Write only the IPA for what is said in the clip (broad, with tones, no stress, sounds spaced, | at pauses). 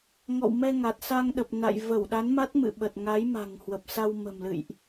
ŋ ɔ̰˧˨ w m ɛ˧ ŋ a˨˩ t̚ s a˧ ŋ ɗ ə˨˩ p̚ n a̰˧˨ j v ə˧˩ w ɗ a˨˦ n m a˦˥ t̚ m ɨ̰˧˨ ɓ ə˨˩ t̚ ŋ a˨˦ j m a̤˨˩ ŋ h w ə˨˩ p̚ s a˧ w m ə̤˨˩ m l ɨ̰˧˨ j ʔ